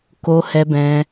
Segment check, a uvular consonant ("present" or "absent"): absent